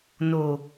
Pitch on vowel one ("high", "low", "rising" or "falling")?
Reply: low